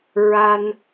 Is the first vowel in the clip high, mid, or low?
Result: low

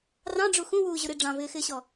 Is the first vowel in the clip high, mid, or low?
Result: low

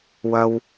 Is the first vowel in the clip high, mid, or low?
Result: low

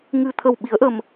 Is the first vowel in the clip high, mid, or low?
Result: high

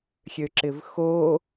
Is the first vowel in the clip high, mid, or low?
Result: mid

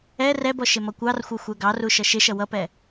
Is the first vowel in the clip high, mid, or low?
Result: mid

